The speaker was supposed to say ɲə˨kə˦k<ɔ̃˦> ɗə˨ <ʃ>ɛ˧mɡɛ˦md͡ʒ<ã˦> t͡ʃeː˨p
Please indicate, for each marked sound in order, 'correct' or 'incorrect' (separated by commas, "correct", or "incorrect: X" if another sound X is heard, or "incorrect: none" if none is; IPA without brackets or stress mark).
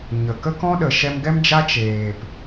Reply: correct, correct, incorrect: a˦